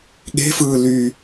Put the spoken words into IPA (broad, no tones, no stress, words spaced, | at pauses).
ɠe̤fɯː ly